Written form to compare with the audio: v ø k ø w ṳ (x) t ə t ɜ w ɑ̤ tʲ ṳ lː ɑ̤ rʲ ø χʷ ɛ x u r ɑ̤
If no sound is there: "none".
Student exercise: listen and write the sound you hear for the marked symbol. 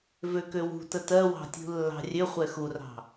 none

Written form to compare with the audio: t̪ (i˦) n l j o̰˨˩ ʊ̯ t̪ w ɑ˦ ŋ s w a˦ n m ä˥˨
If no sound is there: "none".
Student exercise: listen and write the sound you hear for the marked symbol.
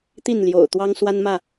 i˥˨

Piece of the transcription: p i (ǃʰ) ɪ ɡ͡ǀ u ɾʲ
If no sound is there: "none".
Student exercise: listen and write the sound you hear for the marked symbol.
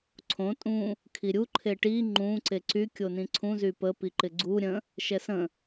ǃ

